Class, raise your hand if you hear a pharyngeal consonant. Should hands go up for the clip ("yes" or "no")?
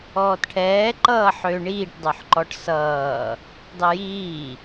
yes